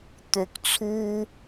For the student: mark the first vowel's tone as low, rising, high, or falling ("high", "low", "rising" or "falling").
low